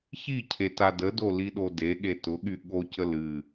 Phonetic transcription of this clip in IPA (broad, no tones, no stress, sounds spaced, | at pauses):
ç i cʰ e t a d ə d o l i ɗ o d e ɠ e t ʊ ɠ y ɠ o c ə l ɨ